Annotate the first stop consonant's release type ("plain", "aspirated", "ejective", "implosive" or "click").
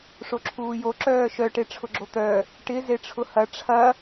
click